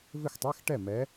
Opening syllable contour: falling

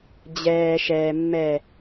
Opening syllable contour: low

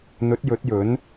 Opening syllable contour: rising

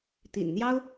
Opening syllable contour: low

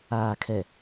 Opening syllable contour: low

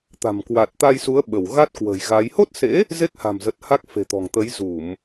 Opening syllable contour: low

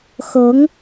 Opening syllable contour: rising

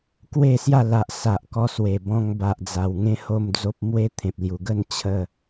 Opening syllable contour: falling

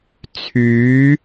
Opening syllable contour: rising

